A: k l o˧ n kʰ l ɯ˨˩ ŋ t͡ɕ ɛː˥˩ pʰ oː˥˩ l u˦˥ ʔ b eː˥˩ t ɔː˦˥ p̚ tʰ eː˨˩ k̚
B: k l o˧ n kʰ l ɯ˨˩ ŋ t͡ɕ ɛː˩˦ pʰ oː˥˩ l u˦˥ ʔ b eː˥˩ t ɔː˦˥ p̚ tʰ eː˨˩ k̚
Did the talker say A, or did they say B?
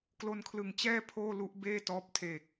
A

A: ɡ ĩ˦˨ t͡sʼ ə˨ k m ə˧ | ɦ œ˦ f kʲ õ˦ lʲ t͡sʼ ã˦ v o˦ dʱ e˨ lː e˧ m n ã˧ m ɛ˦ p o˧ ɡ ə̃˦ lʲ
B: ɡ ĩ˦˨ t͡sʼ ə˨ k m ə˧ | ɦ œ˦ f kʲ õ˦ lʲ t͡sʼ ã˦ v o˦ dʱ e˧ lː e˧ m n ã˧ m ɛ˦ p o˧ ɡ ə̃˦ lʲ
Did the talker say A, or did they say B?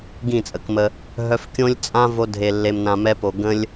B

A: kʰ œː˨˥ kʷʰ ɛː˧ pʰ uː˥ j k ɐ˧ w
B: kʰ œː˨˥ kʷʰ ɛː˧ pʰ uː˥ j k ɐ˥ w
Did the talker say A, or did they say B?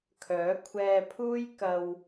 A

